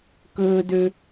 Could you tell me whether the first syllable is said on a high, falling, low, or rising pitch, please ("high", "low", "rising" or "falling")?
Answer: high